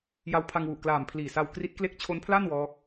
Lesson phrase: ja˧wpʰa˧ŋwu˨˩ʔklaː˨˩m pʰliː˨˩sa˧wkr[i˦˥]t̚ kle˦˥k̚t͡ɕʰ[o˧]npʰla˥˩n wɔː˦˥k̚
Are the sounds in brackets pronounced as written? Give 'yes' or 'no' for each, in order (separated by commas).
yes, no